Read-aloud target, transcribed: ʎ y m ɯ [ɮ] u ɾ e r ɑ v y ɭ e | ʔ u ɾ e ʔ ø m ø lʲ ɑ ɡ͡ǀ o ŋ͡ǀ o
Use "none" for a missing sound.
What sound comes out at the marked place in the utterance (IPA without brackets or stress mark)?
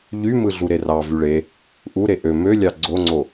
ɮ